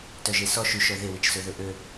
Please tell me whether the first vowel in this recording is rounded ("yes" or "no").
yes